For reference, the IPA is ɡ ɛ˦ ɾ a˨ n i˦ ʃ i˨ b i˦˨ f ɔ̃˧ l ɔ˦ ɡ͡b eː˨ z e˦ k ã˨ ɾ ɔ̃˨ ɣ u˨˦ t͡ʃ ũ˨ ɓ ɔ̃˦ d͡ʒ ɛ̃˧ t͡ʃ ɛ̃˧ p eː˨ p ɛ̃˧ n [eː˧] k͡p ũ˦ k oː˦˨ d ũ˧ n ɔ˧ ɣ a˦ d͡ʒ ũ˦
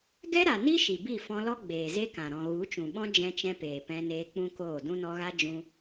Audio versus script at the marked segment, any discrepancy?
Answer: no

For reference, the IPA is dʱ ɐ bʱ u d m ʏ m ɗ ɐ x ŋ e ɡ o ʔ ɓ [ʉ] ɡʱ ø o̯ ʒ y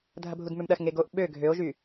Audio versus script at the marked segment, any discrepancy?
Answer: yes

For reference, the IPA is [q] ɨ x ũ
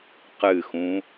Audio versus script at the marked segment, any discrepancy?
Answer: no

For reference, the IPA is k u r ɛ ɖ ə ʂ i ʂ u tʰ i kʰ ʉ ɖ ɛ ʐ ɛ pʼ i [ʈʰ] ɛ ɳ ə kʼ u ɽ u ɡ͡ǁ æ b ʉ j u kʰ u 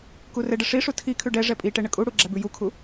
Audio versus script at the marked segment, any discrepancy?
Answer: yes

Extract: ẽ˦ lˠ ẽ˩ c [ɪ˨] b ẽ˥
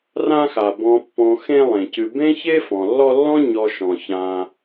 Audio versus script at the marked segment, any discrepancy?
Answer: yes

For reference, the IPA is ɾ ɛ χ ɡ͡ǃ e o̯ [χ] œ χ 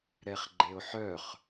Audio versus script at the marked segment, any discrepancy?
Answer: yes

